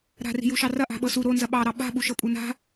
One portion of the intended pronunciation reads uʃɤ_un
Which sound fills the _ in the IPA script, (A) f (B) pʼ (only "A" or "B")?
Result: B